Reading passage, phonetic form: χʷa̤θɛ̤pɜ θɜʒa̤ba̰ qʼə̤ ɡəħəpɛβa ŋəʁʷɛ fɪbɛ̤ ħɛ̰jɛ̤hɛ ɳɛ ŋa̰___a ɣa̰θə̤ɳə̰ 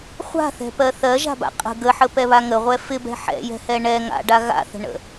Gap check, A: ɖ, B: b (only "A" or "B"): A